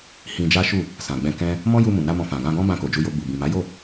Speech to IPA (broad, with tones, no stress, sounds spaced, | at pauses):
h ĩ˧ d͡ʒ a˦ ʃ u˦˨ | s ã˨ ɡ͡b ɛ̃˧ k ɛ̃˦ | m ɔ̃˦ j u˧ m ũ˨ n a˧ m ɔ̃˧ f ã˨ ɡ ã˧ ɡ ɔ̃˦ b ã˧ k o˨ d͡ʒ u˧ j o˧ ɡ͡b u˨ b ĩ˨ m a˨˦ j o˦˨